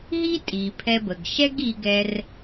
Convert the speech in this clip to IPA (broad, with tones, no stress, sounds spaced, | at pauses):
ɦ i˥ tʼ i˩ pʰ ɛ˧ b ə˩ ɡ ʃ ɛ˥ ɡ i˧ ɡ ɛ˧ r